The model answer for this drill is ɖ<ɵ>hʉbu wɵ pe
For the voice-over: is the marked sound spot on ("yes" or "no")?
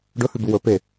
yes